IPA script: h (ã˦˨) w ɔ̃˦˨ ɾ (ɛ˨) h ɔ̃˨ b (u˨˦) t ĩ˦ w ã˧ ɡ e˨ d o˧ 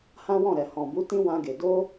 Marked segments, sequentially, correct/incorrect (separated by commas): incorrect, correct, correct